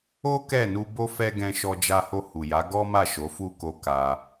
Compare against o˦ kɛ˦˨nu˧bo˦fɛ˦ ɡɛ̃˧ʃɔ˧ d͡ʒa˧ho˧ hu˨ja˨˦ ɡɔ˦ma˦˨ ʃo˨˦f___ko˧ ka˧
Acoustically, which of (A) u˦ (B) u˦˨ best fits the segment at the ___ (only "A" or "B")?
B